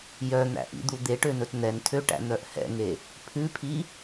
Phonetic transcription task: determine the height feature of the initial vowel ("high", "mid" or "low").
mid